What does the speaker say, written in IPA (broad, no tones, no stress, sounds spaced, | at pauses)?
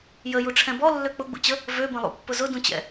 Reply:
j ə j u ʈ͡ʂʰ ɛ̃ b ɔ lː ø k͡p ʊ ɡ͡b ṵ t͡ɕ ə | v ø b ə̃ lˠ ṵ pː ʊ z ʊ d ũ t͡ɕ ɛ̰